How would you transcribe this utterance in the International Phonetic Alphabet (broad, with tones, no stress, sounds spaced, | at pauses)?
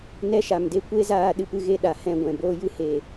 n ɛ˦ ʃ a˨ m d e˦ kʷ e˦ z aː˧ ɗ ɨ˧ p ɨ˧ ɣ e˧ ɗ a˨ h ɛ̃˦˨ ɡʷ ɛ̃˨ b oː˧ j ɨ˧ h e˨